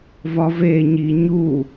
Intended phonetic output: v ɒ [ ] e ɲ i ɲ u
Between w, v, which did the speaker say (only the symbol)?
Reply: v